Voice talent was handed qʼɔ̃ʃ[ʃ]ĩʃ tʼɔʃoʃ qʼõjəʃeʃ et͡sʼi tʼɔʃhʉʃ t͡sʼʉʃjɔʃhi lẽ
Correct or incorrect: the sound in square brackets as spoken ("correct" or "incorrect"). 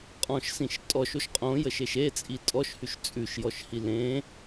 incorrect